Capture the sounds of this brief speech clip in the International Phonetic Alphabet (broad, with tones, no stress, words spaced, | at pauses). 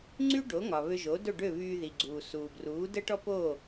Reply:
ŋ͡ǀy˥ɖo˩˥ŋɒ˩ βø˧ʒo˩˥ do˥˩ɖø˥˩βyː˧ ði˩ɡ͡ǀuː˩ suː˩bruː˩˥ də˥ʈɔ˥ po˥˩